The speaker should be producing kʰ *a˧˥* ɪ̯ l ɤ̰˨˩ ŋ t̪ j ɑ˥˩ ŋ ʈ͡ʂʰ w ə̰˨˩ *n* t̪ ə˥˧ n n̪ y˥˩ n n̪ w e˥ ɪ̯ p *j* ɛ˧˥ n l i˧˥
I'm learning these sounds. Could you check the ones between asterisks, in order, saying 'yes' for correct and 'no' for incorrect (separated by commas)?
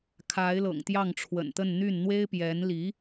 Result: yes, yes, yes